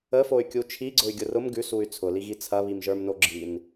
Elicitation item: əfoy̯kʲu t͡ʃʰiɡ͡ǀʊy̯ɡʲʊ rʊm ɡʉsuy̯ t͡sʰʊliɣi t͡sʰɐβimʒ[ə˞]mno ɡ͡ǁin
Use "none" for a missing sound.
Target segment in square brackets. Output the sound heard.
ə˞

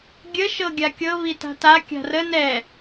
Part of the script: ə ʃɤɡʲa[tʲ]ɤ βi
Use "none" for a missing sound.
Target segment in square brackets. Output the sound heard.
kʲ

